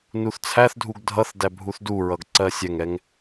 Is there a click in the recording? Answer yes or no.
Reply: yes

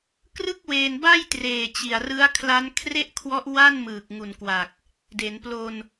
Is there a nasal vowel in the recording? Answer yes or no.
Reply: no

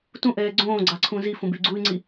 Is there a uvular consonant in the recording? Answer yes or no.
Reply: no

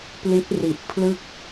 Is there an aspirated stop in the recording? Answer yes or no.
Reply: yes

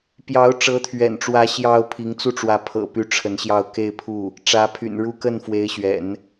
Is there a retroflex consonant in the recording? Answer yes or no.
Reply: yes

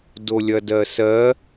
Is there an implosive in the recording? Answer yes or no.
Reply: no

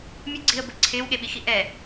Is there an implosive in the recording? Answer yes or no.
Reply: yes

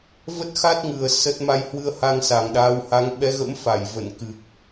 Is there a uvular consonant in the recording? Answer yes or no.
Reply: no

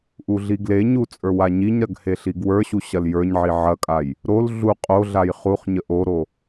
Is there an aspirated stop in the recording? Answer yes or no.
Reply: no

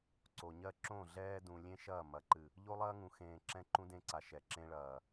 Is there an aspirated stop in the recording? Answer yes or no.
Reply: no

